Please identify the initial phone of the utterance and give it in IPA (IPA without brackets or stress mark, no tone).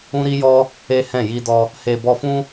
ũ